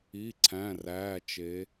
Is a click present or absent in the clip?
present